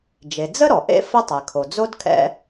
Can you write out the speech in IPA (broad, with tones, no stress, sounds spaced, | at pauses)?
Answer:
d͡ʒ e˩ d͡z ə˥ ɾ ɔ˩ ʔ ḛ˥ f ə˥ tˤ ɛ˩ kʰ o˩ d͡z o˥ d kʰ ɛ̰˥